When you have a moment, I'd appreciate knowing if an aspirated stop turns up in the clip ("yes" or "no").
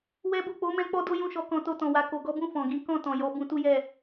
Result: no